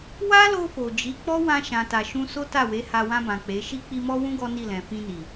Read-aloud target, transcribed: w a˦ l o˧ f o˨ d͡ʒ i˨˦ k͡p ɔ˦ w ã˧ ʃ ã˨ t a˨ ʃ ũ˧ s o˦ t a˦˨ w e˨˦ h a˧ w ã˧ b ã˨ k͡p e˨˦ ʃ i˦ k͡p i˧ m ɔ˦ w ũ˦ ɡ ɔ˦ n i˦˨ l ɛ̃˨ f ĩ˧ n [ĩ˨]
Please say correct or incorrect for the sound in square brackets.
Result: incorrect